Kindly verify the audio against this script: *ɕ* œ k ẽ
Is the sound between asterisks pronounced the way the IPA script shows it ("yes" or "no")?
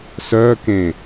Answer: no